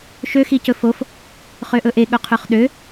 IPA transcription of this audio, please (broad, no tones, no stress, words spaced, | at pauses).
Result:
ʃøxicɵ fof | χøʔɵʔe ɠɵqʰøχɗø